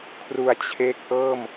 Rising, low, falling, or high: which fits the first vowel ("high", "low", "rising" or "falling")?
low